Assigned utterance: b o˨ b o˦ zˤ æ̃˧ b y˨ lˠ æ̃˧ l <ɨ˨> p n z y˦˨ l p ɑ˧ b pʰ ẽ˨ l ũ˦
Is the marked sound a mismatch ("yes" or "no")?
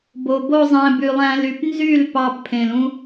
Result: yes